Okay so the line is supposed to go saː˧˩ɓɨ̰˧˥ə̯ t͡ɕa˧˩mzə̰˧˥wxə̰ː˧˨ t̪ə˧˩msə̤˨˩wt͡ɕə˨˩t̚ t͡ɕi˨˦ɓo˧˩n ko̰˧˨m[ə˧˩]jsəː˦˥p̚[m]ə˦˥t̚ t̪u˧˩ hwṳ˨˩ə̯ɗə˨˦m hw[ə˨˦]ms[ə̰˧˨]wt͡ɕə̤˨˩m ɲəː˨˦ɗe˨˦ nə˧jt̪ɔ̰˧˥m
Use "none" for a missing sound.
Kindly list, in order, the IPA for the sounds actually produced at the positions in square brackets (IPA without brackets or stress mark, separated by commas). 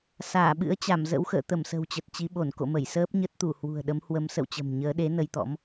ə˧˩, ɲ, ə˨˦, ə̰˧˨